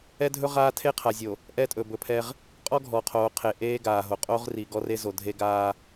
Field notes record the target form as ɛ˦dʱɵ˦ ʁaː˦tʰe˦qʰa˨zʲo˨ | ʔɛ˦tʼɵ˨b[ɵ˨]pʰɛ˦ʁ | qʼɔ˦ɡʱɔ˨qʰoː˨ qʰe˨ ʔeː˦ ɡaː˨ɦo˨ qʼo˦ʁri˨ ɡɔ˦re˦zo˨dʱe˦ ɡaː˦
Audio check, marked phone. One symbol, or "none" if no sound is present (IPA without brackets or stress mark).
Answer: ɵ˨